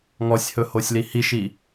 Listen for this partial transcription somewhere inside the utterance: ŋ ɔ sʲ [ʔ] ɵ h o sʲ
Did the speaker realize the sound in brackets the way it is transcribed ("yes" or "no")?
no